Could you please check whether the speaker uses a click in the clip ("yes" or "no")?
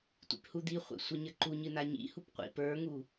yes